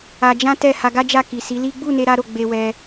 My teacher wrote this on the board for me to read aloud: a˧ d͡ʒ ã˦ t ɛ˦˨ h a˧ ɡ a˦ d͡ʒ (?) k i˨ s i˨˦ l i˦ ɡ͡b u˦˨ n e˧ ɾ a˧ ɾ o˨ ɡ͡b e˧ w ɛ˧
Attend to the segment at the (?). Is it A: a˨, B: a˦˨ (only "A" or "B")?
B